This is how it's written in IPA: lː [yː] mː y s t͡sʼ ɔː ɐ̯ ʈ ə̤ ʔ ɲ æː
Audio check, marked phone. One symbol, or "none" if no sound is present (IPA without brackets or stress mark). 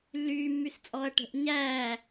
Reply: yː